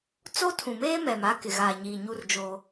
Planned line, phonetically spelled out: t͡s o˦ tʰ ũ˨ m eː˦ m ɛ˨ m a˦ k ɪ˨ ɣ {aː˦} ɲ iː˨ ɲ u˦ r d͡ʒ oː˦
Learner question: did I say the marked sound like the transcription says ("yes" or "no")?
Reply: no